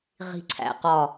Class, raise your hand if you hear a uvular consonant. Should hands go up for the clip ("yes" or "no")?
yes